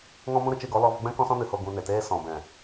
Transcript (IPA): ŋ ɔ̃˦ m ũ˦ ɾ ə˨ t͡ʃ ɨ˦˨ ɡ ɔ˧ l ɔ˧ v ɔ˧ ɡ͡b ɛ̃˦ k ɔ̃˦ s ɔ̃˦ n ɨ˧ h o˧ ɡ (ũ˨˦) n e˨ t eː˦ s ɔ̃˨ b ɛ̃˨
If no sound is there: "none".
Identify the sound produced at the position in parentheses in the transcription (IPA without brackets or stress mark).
ũ˧